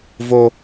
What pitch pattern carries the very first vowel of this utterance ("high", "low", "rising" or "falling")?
high